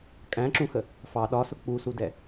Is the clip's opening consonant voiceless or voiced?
voiceless